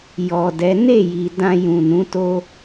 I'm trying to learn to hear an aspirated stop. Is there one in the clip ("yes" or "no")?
no